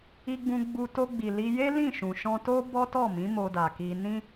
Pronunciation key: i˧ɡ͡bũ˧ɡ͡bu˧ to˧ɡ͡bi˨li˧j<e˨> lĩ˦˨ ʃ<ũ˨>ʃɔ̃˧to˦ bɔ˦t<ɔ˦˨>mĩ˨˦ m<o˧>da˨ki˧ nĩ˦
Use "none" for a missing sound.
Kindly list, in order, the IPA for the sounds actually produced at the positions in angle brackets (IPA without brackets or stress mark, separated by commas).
e˦, ũ˨, ɔ˦˨, o˧